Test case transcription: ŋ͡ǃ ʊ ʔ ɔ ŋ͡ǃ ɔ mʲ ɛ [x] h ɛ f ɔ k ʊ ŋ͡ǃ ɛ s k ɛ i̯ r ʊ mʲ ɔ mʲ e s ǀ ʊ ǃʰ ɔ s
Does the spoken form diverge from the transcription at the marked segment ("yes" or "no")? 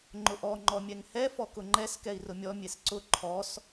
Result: yes